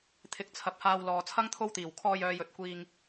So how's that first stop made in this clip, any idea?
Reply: aspirated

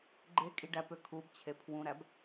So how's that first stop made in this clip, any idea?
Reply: click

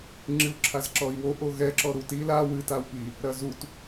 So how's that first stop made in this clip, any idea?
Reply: click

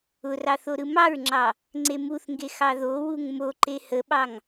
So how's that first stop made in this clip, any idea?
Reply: click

